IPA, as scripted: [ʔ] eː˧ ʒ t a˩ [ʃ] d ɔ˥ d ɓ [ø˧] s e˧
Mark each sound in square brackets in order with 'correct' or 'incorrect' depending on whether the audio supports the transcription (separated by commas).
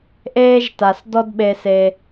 correct, incorrect, incorrect